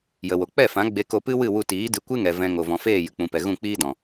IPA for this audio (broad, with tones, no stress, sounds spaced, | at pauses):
j ə˨ w o˨ k͡p ɛ˦˨ f ã˨˦ ɡ͡b e˧ k o˧ p ɨ˦ w ɨ˦˨ w u˧ t iː˨˦ d ɨ˧ kʷ ɨ˦ ŋ ɛ˨ v ɛ̃˧ ŋ o˨ v ɔ̃˨ f eː˦˨ j ɨ˨ k͡p ũ˨ p ɛ˨ ɣ ũ˦˨ k͡p iː˦ d ɔ̃˨